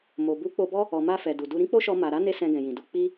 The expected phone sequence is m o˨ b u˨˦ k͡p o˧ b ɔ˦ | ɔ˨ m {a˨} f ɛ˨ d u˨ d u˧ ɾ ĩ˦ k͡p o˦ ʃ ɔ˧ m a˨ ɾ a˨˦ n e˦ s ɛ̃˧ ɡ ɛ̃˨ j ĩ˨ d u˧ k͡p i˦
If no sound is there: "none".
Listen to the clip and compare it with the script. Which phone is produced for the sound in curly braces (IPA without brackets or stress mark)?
a˧